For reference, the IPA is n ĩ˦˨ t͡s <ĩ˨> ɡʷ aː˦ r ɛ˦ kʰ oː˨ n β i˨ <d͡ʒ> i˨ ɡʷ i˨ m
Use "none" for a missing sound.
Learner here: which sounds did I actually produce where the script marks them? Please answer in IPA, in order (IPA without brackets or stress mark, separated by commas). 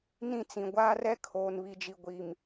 ĩ˨, d͡ʒ